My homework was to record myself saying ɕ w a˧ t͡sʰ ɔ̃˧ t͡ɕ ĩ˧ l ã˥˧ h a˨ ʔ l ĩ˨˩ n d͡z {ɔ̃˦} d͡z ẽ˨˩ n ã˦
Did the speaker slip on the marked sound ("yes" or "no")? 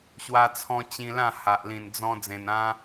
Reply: yes